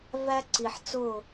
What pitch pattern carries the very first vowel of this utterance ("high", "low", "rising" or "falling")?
high